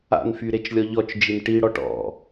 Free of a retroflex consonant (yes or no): no